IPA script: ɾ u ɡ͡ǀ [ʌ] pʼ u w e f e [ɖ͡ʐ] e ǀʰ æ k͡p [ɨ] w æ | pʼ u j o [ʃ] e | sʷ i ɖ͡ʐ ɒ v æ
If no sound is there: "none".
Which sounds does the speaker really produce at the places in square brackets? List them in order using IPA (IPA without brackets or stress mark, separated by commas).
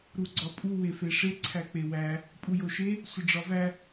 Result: ɒ, ʂ, e, ʃ